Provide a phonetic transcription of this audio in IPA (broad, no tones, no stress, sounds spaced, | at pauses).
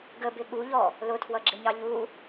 ɡ ə b ɪ ɠ u ʎ ɔ | l ʊ tʰ w ʌ ɡ͡ǁ ɪ ɲ ɑ ʎ u